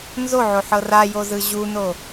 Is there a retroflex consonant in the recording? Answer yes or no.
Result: no